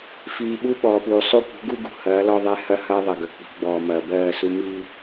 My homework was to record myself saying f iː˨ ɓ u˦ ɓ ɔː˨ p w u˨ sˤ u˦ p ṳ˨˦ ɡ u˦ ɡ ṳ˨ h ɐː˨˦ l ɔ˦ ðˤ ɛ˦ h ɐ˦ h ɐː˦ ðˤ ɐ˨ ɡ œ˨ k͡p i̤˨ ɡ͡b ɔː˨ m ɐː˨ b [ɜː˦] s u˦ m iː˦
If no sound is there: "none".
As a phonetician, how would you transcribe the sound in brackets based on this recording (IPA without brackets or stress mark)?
ɜː˦˨